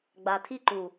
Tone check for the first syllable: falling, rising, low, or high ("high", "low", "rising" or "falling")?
low